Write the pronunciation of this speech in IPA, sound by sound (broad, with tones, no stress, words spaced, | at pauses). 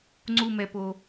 ŋ͡ǀu˥˧mɛ˧po˧